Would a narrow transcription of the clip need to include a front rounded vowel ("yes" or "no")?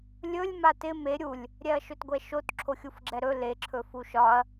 no